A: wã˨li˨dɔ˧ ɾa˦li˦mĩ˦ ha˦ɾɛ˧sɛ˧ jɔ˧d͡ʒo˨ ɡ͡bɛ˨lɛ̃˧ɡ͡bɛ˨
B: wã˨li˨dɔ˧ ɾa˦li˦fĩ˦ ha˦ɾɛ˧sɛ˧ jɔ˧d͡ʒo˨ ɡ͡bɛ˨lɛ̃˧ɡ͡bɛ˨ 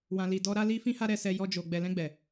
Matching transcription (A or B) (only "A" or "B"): B